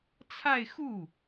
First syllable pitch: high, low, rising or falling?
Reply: falling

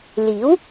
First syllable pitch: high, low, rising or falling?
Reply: rising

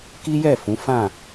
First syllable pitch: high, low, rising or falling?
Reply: high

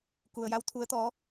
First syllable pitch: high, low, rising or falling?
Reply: low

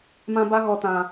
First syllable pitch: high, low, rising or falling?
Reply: high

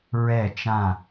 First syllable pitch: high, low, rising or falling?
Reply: falling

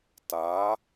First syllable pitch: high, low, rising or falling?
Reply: rising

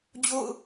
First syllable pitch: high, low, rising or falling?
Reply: falling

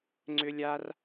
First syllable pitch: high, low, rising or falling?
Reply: high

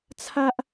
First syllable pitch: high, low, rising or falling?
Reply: high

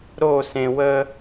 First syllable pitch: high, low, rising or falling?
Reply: falling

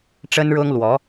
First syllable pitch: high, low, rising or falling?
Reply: high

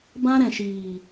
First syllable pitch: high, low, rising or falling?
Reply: high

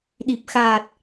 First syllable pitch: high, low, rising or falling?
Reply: low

